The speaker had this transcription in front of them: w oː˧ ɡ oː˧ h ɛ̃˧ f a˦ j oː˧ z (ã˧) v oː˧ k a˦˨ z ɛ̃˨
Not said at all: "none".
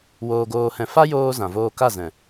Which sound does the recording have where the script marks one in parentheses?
ã˨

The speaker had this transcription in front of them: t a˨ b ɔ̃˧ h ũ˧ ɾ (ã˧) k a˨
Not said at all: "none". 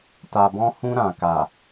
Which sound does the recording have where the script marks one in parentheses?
ã˨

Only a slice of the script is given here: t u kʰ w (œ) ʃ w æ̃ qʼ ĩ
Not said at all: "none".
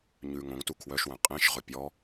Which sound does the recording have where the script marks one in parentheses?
œ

